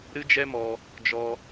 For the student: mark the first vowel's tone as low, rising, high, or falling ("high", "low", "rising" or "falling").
high